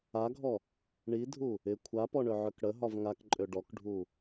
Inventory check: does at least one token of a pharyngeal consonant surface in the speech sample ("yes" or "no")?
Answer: yes